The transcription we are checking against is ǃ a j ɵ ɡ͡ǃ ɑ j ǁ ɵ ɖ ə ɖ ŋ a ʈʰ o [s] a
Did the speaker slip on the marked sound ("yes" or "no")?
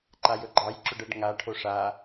yes